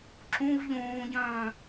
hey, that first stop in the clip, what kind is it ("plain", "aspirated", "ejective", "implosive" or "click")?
click